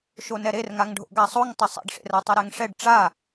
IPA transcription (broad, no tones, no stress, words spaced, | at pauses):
ʃonɛɾerŋaŋ ɖʱo̰ɡasˤoŋ tˤʌsˤḛɖʂḛra tˤiɾɛŋʂɛɖ ʈ͡ʂa